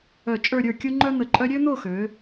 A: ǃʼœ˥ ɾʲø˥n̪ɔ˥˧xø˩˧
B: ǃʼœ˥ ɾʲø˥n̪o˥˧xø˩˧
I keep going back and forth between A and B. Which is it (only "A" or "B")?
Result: B